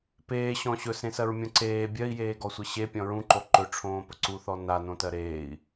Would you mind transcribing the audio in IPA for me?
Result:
p eː ɕ ɔ̃ ɕ ɵ s ẽ s ɜ ɹ mʲ õ ǀ eː bʲ ɜ i̯ j eː ɡ ɔ sʷ e ɕ e pʲ ɔ̃ ɹ ũ ǃ o ǃ ɵ ʈ͡ʂʰ õː p ɵ ǀ u θ ɔ n a n õ t ɜ ɾ eː i̯

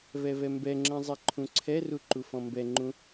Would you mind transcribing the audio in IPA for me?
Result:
v ɛ v ɛ m b ɛ ŋ͡ǁ ɛ̃ zˤ ɛ ǃʰ ũ ǀʰ ɛ r u ǃ u f ɔ̃ m b ɛ ŋ͡ǃ ũ

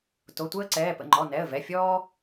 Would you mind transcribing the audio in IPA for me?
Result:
t o˩˧˩ tʷ ɛ˦ ə̯ ǀ ɛː˩˧˩ p ə̰˩˧˩ ŋ͡ǃ ɔ˩˧˩ n ɛ˩˧˩ ə̯ v ɛ˩˧˩ fʲ ɔː˦

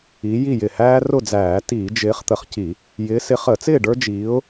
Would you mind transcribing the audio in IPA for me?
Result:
i˨˦ j i˥˨ j ɪ˧˩ h æː˦ r ʊ˥˨ d͡z æː˧˩˧ t iː˧˩˧ d͡ʒ ɪː˨˦ χ t̪ ə˧˩ χ c i˧˩˧ | j ɪː˨˦ s ɪ˨˦ χ əː˧˩˧ t͡s ɪː˥˨ ɖ ə˞˦ d͡ʒ iː˨˦ ʊ̯

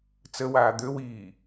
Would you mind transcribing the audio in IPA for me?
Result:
t͡s ə w aː d̪ ø w iː

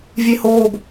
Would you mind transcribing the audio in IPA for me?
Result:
vʲ e h oː b

